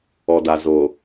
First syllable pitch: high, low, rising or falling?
low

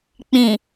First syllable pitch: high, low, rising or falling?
low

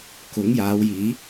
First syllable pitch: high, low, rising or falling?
rising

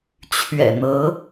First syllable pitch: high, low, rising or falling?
low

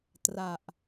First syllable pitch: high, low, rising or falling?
low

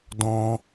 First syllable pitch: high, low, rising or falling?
high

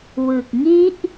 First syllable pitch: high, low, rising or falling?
low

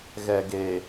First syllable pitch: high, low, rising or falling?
low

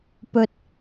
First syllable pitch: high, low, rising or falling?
high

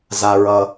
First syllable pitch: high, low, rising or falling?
low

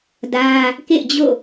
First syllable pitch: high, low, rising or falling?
high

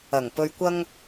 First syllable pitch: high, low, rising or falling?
low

